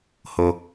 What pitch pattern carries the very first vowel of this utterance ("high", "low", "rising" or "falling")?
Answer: low